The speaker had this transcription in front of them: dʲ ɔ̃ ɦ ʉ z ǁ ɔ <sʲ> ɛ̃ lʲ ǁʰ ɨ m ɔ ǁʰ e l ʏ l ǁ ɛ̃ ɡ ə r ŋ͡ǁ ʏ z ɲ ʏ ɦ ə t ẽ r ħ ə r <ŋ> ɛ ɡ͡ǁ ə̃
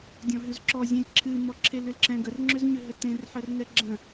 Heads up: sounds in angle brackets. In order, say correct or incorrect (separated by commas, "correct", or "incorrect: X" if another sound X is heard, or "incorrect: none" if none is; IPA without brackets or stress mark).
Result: incorrect: zʲ, correct